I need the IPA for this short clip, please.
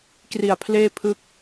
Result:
k r i˨˩ a̯ pʰ l eː˥˩ pʰ ɯ˦˥ k̚

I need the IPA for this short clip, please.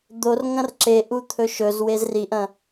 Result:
d̪ o r ŋ ɐ̃ r ǁ e ʔ u t̪ʰ ɵ ʃ ɵ z w e z r i ʔ ɐ̃

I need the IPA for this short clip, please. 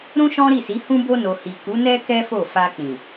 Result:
ɾ ũ˦ ʃ ɔ̃˦ ɾ i˦˨ s i˨˦ h ũ˦ b o˧ n o˨ h i˨ k u˨˦ n ɛ˦ k ɛ˦ f o˦˨ f a˧ k͡p ĩ˨

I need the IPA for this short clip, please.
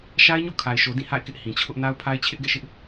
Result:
ʃ a˦ ɪ̯ ɲ o̰˦˨ kʰ a˨ ɪ̯ ʃ o˨ d ĩ˦˨ h a̰˦˨ ɪ̯ k ɪ˦ ʔ h ĩ˨ t͡ɕʰ ʊ˦ ʔ n a˦ ʊ̯ pʰ a˦ ɪ̯ t͡ɕʰ ɪ˦ ʔ ɡ ɛ̰˦˨ ʃ ɪ˦ ʔ

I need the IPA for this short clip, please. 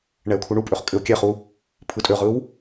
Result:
ɳ ɛ ʊ̯ kʰ u ɳ u pʼ ø χ kʼ ɘ ʊ̯ kʲ ɛ χ u | pʰ ɯ tʼ ø ʁ ɯ w

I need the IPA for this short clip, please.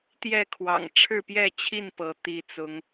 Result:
t̪ j ɛ˥˨ kʰ w ɑ̰˨˩ ŋ ʈ͡ʂʰ ɻ̩˥˨ p j ɛ˥˨ t͡ɕʰ i˥˨ n p ɤ˨˦ t̪ i˨˦ t͡s ʊ˨˦ ŋ

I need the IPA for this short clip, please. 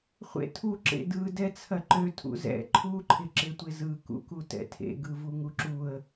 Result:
χʷ ḛ tʰ u ǁ ḛ d ɯ d ɛ t͡sʰ ɐ ǃ ø tʰ ṵ z ɛ̰ ǃʰ u ǃʰ ɪ ǁ ɪ tʷ ɪ z ɯ k ṵ k u t ɛ̰ tʰ ḛ ɡ ɯ v u ŋ u ǁ u ə̯

